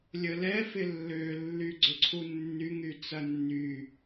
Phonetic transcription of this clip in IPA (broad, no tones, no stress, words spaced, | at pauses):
lʲəlɛ fɪlːølːy ɡ͡ǀʏǀʰunːyŋy t͡sɐnːy